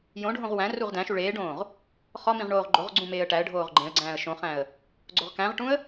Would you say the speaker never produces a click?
no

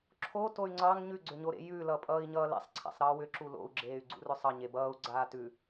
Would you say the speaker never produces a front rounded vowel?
no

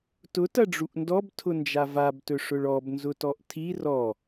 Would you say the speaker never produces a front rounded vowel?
yes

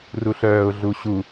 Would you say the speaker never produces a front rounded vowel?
no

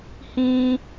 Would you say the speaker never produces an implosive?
yes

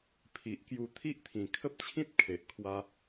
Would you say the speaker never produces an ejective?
yes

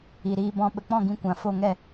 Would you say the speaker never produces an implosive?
no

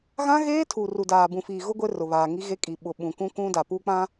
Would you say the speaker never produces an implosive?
no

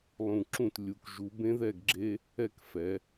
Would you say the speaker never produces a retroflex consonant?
yes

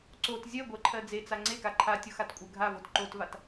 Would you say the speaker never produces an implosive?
yes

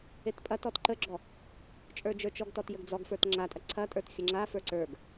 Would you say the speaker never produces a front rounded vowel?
yes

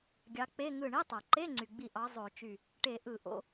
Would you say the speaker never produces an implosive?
yes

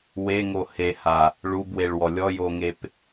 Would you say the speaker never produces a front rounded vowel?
yes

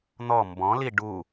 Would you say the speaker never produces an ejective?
yes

